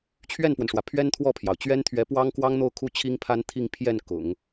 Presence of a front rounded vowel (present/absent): absent